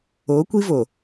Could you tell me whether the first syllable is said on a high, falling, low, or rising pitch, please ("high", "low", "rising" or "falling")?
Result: rising